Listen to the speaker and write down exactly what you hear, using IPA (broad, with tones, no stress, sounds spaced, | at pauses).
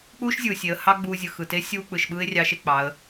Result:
k͡p uː˥ ʃ zʲ ɯː˩ sʲ e˩˧ ə̯ h ɑ˥ ɡ͡b uː˧ zʲ ɯ˩ x ɯ˩ t e˧˥ sʲ uː˧ k͡p ɯ˩ ʃ ɓ ɯː˥ ɪ̯ rʲ ɑ˧˥ ʃ e˧ k͡p ɑ˩˧ ə̯